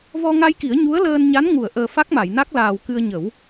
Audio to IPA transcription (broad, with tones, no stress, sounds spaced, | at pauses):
v ɔ˧ ŋ a˧ j k i˨˩˦ ə̯ ɲ u˧˥ ə̯ l əː˧ n ɲ a˧˥ n ŋ u˨˩˨ ə̯ ʔ əː˨˩ f a˦˥ k̚ m a˨˩˨ j n a˦˥ k̚ l aː˨˩ w k ɨ˧ ə̯ ɲ ə˨˩˦ w